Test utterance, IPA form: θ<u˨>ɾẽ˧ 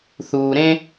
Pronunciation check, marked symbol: incorrect: uː˨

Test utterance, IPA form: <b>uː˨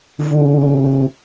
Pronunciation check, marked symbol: incorrect: v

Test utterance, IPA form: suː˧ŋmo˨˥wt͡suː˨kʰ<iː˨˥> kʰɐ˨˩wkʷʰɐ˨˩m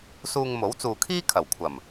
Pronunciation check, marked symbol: incorrect: iː˥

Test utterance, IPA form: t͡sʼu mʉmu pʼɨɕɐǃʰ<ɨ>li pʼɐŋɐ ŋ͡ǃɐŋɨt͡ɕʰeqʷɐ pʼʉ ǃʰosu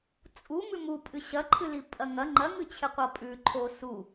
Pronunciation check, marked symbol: correct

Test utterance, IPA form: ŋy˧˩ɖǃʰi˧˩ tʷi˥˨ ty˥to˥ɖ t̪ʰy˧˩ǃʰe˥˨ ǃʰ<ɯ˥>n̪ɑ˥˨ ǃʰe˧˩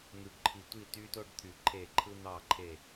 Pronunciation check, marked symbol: correct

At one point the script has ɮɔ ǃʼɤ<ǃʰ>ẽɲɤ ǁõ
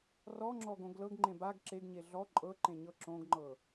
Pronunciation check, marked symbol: incorrect: ǃ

